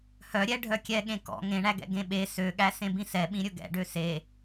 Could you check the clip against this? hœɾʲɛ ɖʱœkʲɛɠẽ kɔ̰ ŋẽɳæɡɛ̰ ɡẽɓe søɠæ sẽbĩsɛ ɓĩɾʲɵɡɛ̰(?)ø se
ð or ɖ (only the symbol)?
ɖ